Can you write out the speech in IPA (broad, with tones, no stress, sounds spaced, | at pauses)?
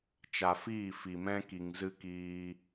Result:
t͡ʃ a˨ f iː˦˨ f i˨ m ɛ̃˦ k i˨ ŋ z ɨ˦ k iː˧